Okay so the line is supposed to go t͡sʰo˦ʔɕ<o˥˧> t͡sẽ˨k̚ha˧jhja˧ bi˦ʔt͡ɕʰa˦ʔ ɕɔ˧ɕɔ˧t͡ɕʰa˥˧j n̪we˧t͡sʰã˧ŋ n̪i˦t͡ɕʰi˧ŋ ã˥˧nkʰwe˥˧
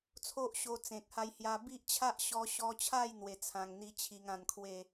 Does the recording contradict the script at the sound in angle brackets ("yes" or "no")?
yes